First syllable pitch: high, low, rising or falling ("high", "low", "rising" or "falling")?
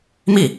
falling